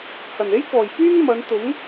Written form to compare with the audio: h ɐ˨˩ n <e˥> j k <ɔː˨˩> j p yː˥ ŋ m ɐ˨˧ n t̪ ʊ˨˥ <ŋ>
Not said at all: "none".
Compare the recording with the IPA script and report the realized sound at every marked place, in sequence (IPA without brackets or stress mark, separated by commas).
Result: e˥, ɔː˨˩, ŋ